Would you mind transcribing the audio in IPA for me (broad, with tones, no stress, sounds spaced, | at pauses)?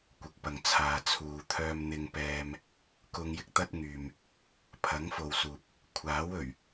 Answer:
kʷ ɪ˨ k̚ p ɐ˨ ŋ t͡sʰ aː˨ t͡sʰ uː˨ t̪ʰ œː˥ m n̪ ɪ˥ ŋ p ɛː˥ m | k ʊ˧ ŋ j ɪ˥ k̚ t̪ ɐ˥ t̚ ŋ yː˨ m | pʰ ɐ˨˥ ŋ f o˨ w s uː˨ p̚ | kʷʰ aː˨˥ w ɵ˨˩ ɥ